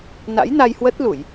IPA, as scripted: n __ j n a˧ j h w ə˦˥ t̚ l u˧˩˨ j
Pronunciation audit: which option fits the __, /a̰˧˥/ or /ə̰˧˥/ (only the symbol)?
a̰˧˥